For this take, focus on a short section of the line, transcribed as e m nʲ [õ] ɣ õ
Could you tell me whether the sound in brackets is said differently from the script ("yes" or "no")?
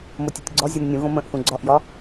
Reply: yes